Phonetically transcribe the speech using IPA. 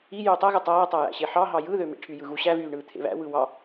i j yː tˤ æ ɣ ɯ tˤ æː tˤ æ j æ̰ ɕ e ħ ɑ ɦ ɑ j ɯ ð ø m ḛ ʈʰ y j ɯ ɣ u ɕ æ v yː ɳ ɯː t̪ʰ ḛ β æ̰ w ɯ w ɑ

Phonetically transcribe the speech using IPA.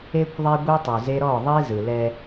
e˦ kʷ ðˤ e˦ ɡʷ e˦ tˤ u˨ z e˦ ɾ ɔ˦˨ ðˤ i˦ z ɯ˨ l ɛ˦

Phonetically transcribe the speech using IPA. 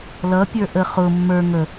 l ʌ pʲ ə˞ ʔ ə χ ʊ mː ə˞ ŋ ə

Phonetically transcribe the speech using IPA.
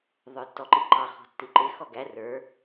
ðˤ ə˞ tː ɔ ǃ i ǃ ɑ χ ɔ̤ tː i ǃ ɪ x ɔ ɡ æ r ə˞

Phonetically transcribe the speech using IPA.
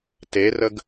t e r ə ɡ

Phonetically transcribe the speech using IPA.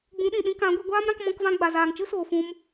ɡ͡b ũ˨˦ ɗ ĩ˨ ɗ ĩ˧ k ã˨˦ ɡʷ e˧ ɡʷ aː˦ m ɾ ã˧ k m ɔ̃˧ k v ã˧ ɡ͡b a˨ z aː˨ ŋ t͡ʃ ɨ˦ s oː˨ f ũ˧ m

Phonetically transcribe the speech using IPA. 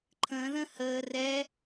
ǃʰ ə̃ː ð ə̃ h əː r ɛ

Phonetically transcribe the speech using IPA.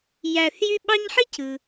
j æ˨ θ j y˦ ɓ ɑ˦ ɲ ħ i˥ cʰ ɯ˩

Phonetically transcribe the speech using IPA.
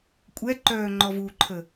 kʷʼ ɛ ǃ œː ŋ͡ǃ ɔ v u ǃʰ ə

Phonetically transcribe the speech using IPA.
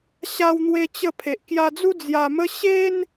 ɕ a˧ w n̪ w e˧ t͡ɕ ə˧ pʰ e˨ ʔ k j a˧ d͡z u˦ d͡z j a˧ m ə˦ ɕ e˦ n

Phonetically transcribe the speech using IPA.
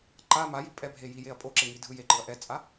ǃ a m a j i pʼ ɛ bʱ e j i j e ɐ̯ pʼ o ǁ e ŋ i dʱ ɯ j e ǃ ɯ ɐ̯ ʔ ɛ t͡sʼ a

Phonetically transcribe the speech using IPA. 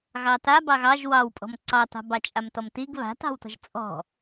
ɣ ɑ t a b ɑ ɣ ɑ ʒ w ɑ w pʼ ɔ̤ m ǀ ɑ t ɑ̤ b ɑ t͡ʃʼ a m t ɔ m t i ɡ β a̤ t ɑ̤ w t ɔ̤ ʒ t͡sʼ ɔ̤

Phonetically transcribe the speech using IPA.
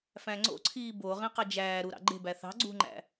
f æ̃ ŋ͡ǀ o̰ ǀʰ iː b o ʁ ĩ q ɑ d͡ʒ æː ɾ u ɾ ɑ̰ ɡ͡ǃ e̤ b æ θ ɑ̤ ɡ͡ǀ ṳ ŋ͡ǃ æ̰

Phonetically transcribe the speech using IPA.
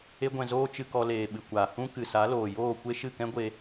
e˦ ɡʷ ɛ̃˧ z oː˦ t͡ʃ ɨ˧ k ɔ˧ l eː˨ ɓ ɨ˨ kʷ aː˨ h ũ˦ k ɨ˨ s a˨˦ l oː˨ j oː˦˨ kʷ e˦ ʃ ɨ˦˨ k ɛ̃˦ ɡʷ e˧

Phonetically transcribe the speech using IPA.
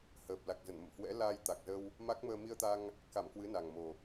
h əː˨˩ p̚ l a˨˩ k̚ z ə˧˩ n m ə̰˧˨ m h w ɛ̰˧˥ l aː˧ j t̪ a˨˩ k̚ z ə˧ w | m a˦˥ k̚ m əː˧ m i˧ ə̯ t̪ a˧ ŋ | k a˧˩ m k w ɨ˨˦ n a˨˩ ŋ m o˨˩

